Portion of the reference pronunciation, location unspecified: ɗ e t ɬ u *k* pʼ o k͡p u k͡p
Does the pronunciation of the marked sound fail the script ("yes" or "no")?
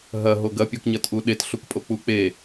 no